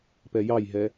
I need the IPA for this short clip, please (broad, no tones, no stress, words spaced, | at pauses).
pɛjɑjɦɛ